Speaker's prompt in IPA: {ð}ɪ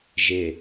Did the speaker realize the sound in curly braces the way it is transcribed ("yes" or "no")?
no